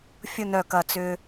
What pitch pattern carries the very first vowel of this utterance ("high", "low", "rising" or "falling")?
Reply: falling